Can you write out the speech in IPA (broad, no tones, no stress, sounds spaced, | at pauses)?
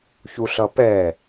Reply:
ç u ɬ ʌ p ɛ